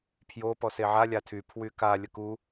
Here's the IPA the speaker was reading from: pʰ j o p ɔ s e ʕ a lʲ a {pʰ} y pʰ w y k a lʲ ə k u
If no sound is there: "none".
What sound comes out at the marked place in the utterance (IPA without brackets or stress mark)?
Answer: tʰ